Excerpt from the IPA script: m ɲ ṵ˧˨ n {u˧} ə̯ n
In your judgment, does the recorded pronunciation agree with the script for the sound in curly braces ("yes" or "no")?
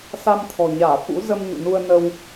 yes